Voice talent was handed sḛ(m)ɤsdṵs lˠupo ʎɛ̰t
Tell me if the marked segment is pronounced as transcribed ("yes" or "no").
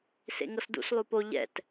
no